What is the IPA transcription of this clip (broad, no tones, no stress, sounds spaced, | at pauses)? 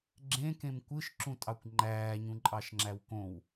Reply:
ɡ͡ǁ ẽ k ẽ m kʷ ɯ ʃ ǁ ũ tʼ ɑ kʷ ŋ͡ǃ æː ɲ ũ ǃʼ ɑ ʃ ŋ͡ǁ æ w k õ w